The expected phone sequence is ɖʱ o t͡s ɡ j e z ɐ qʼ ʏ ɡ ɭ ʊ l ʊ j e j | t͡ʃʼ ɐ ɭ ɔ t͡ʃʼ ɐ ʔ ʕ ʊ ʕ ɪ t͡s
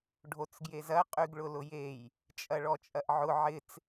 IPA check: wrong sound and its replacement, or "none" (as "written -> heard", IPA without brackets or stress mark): ʏ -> y